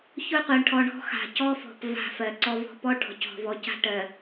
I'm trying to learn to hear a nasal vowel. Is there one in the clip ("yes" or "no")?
no